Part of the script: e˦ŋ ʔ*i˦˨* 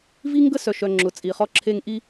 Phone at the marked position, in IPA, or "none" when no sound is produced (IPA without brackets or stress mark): i˦